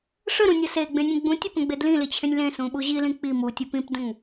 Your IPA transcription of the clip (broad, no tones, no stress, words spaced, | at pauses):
ʂəɾũnʲʌ seɡ͡bẽnʲẽ ɡ͡bũtʲəpə̃ɡ͡be dlĩlit͡ɕʰẽnʲ lẽsũɓu ʑilĩ k͡pi mutʲup ĩpdə̃ŋ